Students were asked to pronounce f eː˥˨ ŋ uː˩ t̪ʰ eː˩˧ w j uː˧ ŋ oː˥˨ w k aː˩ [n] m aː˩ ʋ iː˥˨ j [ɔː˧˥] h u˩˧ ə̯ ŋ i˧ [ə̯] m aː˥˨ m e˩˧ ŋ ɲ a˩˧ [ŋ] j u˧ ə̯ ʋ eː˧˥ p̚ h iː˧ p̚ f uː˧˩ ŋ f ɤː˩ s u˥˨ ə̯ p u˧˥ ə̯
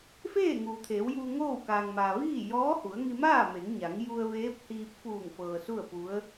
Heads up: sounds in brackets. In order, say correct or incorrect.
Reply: incorrect: ŋ, correct, incorrect: none, correct

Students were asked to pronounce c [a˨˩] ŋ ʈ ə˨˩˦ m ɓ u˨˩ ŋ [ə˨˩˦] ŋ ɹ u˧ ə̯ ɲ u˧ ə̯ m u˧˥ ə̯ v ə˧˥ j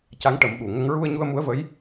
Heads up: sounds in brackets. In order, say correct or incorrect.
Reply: incorrect: a˧˥, correct

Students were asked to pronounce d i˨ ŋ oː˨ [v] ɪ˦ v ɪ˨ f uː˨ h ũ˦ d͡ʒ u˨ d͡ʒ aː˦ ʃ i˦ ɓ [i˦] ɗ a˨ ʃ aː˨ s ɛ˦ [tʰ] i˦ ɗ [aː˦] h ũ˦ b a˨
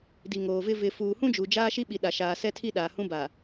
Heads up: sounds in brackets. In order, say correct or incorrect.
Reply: correct, incorrect: i˨, correct, incorrect: aː˨

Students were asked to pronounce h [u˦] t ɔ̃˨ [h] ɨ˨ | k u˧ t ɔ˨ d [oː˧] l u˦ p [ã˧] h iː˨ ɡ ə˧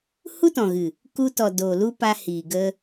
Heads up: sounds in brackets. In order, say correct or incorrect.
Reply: correct, incorrect: ɣ, incorrect: oː˨, incorrect: a˧

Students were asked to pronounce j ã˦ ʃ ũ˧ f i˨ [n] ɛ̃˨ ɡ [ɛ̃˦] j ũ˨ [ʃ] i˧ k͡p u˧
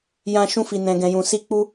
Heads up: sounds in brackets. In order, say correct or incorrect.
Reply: correct, incorrect: ɛ̃˨, incorrect: s

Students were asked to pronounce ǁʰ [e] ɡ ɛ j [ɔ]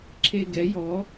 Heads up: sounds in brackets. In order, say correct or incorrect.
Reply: correct, correct

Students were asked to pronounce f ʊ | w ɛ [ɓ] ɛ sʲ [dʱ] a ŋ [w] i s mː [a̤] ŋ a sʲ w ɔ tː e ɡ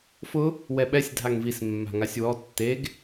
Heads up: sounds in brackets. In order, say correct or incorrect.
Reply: correct, correct, incorrect: v, correct

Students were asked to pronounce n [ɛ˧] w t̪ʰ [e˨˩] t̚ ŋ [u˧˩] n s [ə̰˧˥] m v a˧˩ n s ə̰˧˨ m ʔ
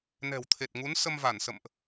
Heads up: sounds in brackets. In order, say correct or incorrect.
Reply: incorrect: ɛ̤˨˩, correct, incorrect: u˨˦, incorrect: ə˧

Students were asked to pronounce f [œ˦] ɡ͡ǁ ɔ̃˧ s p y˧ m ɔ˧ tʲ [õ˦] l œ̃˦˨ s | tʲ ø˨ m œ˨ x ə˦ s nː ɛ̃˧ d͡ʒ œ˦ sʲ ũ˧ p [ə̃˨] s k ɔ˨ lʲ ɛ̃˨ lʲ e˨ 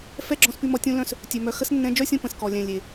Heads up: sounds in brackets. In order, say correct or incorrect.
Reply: incorrect: ɛ˦, correct, correct

